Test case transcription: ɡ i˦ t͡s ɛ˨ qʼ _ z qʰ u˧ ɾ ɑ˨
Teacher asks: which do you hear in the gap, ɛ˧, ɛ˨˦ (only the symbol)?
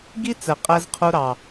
ɛ˧